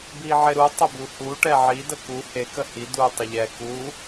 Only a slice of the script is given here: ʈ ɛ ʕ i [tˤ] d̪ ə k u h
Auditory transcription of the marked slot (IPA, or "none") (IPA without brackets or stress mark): none